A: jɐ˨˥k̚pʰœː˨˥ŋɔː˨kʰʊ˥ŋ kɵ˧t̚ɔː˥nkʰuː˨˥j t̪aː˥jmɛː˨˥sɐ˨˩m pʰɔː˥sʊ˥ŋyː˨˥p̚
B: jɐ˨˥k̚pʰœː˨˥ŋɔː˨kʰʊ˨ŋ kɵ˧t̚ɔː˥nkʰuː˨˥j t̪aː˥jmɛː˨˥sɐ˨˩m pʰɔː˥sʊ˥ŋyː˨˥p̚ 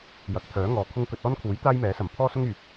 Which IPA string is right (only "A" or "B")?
A